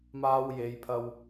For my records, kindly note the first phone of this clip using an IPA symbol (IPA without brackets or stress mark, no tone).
m